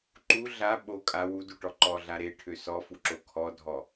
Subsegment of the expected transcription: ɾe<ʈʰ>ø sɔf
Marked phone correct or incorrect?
correct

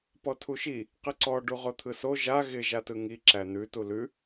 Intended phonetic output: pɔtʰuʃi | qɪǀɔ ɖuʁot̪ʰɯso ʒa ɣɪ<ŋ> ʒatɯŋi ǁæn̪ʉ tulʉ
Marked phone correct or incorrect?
incorrect: none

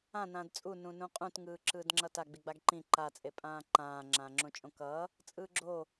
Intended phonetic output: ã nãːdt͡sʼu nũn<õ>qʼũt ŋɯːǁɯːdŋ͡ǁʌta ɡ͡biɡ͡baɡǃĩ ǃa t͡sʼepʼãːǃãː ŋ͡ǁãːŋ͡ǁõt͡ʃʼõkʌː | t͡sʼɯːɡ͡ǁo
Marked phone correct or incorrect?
incorrect: ũ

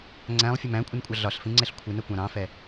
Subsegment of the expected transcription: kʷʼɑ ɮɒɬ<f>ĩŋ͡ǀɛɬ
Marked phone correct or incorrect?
correct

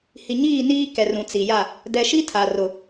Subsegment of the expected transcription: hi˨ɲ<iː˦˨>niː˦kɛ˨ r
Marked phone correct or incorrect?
correct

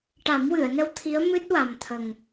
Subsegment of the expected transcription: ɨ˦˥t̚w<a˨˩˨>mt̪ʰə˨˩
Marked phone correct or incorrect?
incorrect: a˨˩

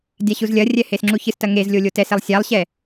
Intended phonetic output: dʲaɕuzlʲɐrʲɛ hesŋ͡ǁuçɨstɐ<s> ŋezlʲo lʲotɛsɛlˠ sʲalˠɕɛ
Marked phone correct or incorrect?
incorrect: none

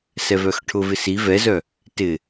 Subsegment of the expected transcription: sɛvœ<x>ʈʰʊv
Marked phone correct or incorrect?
correct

